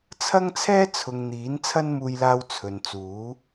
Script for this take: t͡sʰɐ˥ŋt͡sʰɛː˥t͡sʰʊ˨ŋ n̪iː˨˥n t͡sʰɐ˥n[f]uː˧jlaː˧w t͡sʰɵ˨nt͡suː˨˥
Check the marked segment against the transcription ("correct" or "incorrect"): incorrect